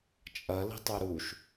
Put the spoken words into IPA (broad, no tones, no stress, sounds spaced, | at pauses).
t͡ʃʼ ɐ l i̤ tˤ œ ɾ u ʃ